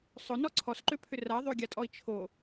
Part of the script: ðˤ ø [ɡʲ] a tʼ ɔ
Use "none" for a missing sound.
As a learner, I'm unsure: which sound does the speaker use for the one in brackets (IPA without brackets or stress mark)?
ɡʲ